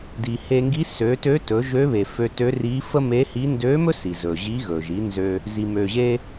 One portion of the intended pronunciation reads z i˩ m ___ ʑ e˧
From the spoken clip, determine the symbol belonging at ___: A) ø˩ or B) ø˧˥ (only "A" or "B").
A